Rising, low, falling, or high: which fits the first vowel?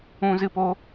high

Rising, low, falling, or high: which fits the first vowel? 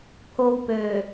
high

